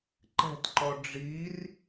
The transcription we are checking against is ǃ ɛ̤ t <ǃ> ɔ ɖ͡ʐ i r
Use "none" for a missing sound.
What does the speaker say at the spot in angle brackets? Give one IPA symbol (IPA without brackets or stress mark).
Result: ǃ